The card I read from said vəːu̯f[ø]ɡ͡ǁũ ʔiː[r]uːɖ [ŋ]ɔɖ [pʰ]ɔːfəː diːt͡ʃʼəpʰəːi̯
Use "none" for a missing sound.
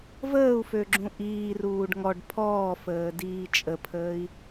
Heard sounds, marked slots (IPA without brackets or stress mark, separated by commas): ø, r, ŋ, pʰ